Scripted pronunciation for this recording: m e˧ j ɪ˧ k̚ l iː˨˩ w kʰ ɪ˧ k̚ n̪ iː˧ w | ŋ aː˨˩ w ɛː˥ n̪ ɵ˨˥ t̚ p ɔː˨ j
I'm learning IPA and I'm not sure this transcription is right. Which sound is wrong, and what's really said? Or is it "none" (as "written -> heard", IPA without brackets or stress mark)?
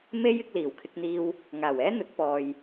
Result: e˧ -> e˥